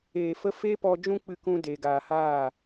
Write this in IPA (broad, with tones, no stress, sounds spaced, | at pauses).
eː˨ f ə˧ f e˦ p ɔ˧ d͡ʒ ũ˦ k͡p ɨ˧ k ũ˧ d eː˨ ɡ aː˨ h aː˦˨